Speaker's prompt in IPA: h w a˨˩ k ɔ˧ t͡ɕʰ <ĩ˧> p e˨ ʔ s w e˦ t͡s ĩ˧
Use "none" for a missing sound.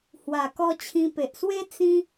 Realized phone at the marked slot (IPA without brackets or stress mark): ĩ˧